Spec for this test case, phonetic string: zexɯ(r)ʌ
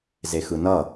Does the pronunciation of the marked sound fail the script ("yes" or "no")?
yes